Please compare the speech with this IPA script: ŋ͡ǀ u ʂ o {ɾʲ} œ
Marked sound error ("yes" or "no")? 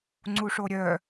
no